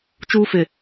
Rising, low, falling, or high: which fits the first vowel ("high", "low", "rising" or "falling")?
high